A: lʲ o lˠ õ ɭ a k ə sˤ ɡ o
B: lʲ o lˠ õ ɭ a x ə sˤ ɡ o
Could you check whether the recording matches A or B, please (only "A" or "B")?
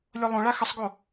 B